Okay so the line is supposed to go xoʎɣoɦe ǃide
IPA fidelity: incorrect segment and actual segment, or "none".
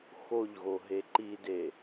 none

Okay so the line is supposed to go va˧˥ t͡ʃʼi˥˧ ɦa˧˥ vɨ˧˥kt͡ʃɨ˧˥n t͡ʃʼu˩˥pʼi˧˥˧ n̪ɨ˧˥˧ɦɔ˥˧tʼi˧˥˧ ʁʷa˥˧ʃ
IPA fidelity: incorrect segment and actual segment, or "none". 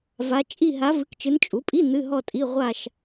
none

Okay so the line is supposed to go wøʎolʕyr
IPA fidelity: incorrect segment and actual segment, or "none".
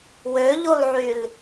r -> l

